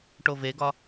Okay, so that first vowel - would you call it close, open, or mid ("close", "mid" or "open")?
mid